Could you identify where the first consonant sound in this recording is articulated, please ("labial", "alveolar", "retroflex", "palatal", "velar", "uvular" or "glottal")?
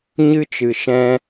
palatal